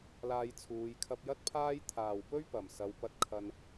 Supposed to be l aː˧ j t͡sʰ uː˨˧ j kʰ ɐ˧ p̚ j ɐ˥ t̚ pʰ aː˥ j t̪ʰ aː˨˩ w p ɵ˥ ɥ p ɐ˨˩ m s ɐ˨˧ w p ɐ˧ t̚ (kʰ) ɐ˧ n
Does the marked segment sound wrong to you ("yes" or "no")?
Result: no